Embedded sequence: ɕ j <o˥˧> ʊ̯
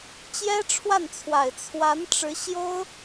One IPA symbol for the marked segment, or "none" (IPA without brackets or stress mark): o˥